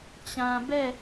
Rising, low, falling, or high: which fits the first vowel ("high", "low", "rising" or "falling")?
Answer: low